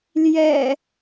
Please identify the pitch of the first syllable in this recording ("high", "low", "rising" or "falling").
low